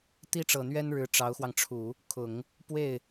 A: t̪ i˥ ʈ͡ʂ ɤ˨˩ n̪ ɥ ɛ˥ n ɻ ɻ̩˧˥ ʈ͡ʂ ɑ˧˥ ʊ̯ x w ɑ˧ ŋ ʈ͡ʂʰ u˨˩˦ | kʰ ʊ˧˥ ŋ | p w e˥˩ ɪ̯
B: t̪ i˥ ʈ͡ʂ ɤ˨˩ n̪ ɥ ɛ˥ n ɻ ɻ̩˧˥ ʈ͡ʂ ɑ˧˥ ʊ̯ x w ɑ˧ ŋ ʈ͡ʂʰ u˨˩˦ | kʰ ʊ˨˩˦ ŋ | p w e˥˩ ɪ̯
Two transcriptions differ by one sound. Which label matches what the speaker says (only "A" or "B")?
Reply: B